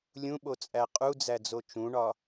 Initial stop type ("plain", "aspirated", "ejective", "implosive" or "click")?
implosive